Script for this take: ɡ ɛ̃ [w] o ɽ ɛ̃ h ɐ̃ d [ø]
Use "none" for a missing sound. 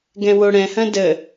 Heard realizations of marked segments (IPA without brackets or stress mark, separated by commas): w, ə